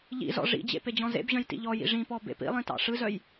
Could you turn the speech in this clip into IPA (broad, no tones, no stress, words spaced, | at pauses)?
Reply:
ʎḭzɔ̰ ʐḭd͡ʑḛ ped͡ʑɔ̃zḛbʑœ̃j tḭʎɔjḭ ʐĩpɔ bḛpḭlˠĩ tɑ̰ʂɯzœj